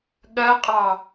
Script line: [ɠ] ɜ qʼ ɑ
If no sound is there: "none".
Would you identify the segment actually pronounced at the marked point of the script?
ɠ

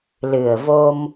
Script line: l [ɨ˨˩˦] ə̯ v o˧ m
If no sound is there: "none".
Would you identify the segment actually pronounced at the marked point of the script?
ɨ˨˩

